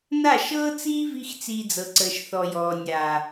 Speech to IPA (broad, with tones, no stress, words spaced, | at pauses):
na˦˨ʃɤː˦t͡siː˦vi˧x t͡siː˧d͡zɤ˨ǀəː˨ʃ θɔ˨jɔː˨nʲa˨